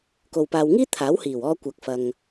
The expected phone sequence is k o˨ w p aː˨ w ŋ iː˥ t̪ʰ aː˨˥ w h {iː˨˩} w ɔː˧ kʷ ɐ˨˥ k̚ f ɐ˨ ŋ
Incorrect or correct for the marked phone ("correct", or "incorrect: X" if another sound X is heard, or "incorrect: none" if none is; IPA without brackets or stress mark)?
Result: correct